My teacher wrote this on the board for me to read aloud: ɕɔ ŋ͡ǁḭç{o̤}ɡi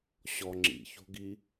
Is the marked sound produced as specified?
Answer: yes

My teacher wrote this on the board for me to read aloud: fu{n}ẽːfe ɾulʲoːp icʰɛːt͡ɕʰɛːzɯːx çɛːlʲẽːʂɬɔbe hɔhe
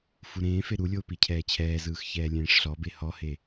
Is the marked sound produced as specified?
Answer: no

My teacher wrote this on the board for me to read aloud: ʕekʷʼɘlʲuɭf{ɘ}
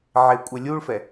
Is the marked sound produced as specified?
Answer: no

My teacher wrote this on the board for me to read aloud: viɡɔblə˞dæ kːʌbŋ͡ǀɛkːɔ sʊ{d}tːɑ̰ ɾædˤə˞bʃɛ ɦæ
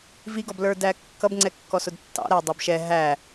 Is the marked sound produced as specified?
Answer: yes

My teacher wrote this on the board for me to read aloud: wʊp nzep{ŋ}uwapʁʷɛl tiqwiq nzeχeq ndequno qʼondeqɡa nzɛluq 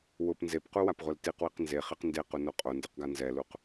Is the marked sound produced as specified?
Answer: no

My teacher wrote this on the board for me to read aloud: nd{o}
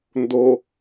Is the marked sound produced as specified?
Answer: yes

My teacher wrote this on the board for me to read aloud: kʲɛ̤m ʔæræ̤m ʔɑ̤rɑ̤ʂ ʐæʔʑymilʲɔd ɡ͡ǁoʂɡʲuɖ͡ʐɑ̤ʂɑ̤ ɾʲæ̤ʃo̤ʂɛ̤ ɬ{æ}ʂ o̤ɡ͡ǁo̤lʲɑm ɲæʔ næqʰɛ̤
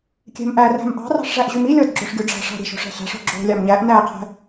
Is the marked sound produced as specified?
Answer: no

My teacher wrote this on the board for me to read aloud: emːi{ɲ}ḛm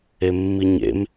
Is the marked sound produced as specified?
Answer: yes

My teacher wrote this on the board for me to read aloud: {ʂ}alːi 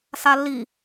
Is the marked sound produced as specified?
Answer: no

